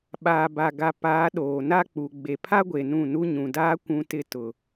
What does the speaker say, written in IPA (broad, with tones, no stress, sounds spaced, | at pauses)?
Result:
ɓ aː˨ b a˨ ɡ a˨ p aː˨˦ ɗ oː˨ n a˦ k͡p u˨ ɡ͡b e˨ pʰ a˦ ɡʷ e˨ n ũ˦˨ n u˦ ɲ ũ˨ d aː˦ kʷ ũ˦ t ɪ˦ t ʊ˨